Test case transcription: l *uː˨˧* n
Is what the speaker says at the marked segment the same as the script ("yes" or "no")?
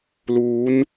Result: yes